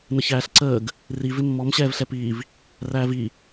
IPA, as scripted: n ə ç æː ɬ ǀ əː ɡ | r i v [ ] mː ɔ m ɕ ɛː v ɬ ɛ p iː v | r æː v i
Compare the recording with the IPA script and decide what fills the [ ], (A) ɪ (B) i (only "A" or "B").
A